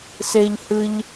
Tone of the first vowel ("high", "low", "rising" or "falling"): high